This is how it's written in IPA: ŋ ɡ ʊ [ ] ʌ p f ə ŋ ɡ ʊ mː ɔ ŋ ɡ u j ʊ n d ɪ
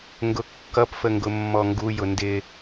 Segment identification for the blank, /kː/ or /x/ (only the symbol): kː